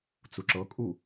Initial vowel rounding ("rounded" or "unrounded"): rounded